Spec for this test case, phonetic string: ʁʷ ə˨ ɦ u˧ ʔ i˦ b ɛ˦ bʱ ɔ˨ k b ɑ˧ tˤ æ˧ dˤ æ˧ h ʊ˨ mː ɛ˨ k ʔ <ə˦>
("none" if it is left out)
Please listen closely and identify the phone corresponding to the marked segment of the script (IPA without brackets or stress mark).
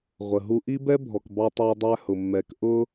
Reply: ʊ˦